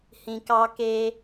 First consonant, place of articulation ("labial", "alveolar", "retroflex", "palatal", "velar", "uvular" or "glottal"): glottal